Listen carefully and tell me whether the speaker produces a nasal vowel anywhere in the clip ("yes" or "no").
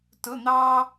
no